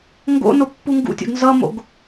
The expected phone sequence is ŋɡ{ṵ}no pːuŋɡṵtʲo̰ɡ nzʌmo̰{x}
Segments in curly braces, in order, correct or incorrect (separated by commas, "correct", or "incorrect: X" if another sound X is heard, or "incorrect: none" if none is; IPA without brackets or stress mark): incorrect: o̰, incorrect: ɡ